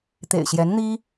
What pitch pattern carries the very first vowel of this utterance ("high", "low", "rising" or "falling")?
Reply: low